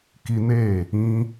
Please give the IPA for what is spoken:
k i˧ n e˦˨ | ĩ˧

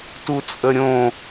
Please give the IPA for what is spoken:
t u t͡sʼ ə ɾʲ õ

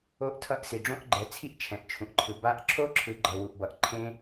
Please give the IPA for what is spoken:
o˦˥ ʔ tʰ ʌ˦˥ ʔ s i˨ ɖ͡ʐ õ˦˥ ʔ ɡ͡ǃ ɛ˨ t͡sʰ i˦˥ ʔ t͡ʃʰ ɛ̃˨ ʔ t͡ʃʰ ũ˨ ʔ ǃʰ ɯ˨ b a˦˥ ʔ ǁʰ o˦˥ ǁʰ ɯ˨ ɡ͡ǃ ʌ˨ w u˨ ʔ b ʌ˨ ʔ ǃʰ ẽ˦˥

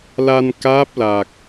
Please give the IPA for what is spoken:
l a˧ n k aː˦˥ p̚ l a˨˩ k̚

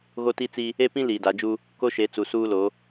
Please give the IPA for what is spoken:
ɣ o˦ t i˦ t͡s i˦ | e˦ p ĩ˦ l iː˨ d a˨˦ d͡ʒ u˦ | k o˦ ʃ e˨˦ t͡s u˨ s uː˦ l o˨˦

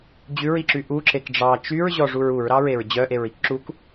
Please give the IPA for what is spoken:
d͡ʑ ʉ ɹ i ǁ y ʔ u ǁ e k ɖ͡ʐ ɑ t͡ʃ y ɹ ʑ ɔ ʐ u ɹ u ɹ ɾ ɑ ɹ e ɹ d͡ʑ œ ʔ e ɹ i k ǁ u k

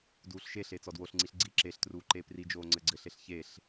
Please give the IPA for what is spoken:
d uː ɬ ʃ e ɬ e t͡s ɔ d w o ɬ ŋ͡ǀ i ɬ ɡ͡ǀ i ǁ e ɬ t r uː ǃ eː p r i d͡ʒ oː ŋ͡ǀ ɘ ɡ͡ǀ ɘ ɬ e ɬ ç e ɬ

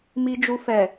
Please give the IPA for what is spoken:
m i˧ d͡ʒ u˧ f ɛ˨

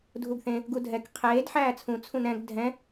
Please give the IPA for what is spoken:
dʱ u ɡ θ ẽ | ɡ u dʱ ɛ k qʰ eː d ħ æː t͡sʰ ũ t͡sʰ ũ n ɛ̃ ɡ dʱ ɛ̃

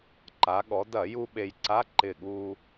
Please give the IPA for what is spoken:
ǃ a˩˧ ɠ ɔ˩˧ d ɐ˧˩˧ j u˧ ɓ e˧ j ǀ a˧˥˧ ǃ ɪ˧˩ ɠ u˧

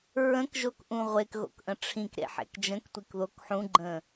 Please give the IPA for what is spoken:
ɹ ə̃ k ʒ o k ʔ ũ ʁʷ e k ɣ o̰ k ʔ ə̃ ʈ͡ʂʰ ĩ k ɾ ḛ ħ ḛ k d͡ʒ ə̃ k tʷ i k ð o k ħ ũ ɡ͡ǃ ə̃

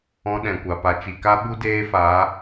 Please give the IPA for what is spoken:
ɔ̃˦ ɗ ɛ̃˨ kʷ a˨ p a˨ t͡ʃ i˨ k a˦ ɓ u˦ d eː˦ f a˨˦

